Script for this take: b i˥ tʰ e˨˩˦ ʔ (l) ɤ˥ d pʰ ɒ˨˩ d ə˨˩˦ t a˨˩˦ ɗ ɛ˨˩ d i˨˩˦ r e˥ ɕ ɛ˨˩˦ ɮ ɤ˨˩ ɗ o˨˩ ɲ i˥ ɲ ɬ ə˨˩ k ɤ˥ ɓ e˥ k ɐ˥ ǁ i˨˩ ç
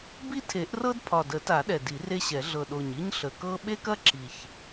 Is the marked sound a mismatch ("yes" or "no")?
yes